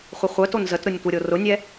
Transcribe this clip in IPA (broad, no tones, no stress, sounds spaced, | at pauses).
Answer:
χʷ ə χʷ œ t o n z ə t ɾ ʊ nʲ tʷ ə ɾʲ o r ʊ nʲ ɛ